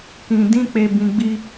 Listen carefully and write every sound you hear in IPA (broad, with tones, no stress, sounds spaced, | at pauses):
k ĩ˨ d ĩ˧ k͡p e˨ b ĩ˨ ɡ͡b i˧